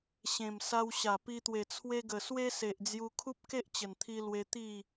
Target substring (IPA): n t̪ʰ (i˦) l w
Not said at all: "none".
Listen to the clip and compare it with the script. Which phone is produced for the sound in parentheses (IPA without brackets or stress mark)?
i˧